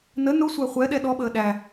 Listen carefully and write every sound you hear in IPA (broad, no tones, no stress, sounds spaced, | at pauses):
n ə n ʊ sʷ æ χʷ ɛ ɗ ɛ ɗ ɔ ɓ əː ɗ æ